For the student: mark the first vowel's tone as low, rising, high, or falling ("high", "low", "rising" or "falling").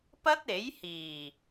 high